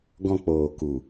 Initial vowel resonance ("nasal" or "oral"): nasal